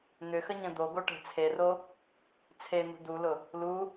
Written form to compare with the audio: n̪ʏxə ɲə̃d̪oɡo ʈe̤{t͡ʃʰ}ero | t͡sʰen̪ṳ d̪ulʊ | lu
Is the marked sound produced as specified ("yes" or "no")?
no